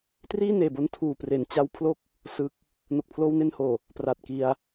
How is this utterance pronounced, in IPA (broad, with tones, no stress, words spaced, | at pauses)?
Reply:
triː˥˩neː˨˩bo˧n tʰuː˨˩pre˩˦n t͡ɕa˦˥wpʰlo˥˩k̚ | sɯ˦˥k̚ | no˨˩k̚pʰloː˧wne˧nhoː˨˩ | pra˨˩t̚ki˧a̯